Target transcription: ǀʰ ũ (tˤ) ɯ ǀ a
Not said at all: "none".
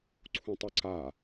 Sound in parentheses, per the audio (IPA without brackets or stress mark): tˤ